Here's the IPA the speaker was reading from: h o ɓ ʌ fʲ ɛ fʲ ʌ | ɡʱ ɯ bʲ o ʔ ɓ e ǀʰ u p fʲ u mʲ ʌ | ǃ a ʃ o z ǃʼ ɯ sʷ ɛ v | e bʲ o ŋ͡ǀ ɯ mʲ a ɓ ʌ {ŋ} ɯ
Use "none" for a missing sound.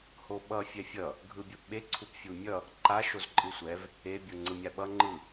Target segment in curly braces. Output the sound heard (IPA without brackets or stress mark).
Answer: ŋ͡ǃ